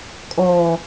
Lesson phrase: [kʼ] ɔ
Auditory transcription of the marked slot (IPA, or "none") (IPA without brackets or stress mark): kʼ